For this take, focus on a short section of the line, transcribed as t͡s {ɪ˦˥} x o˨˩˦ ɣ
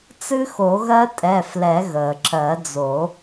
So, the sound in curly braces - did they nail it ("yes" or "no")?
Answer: no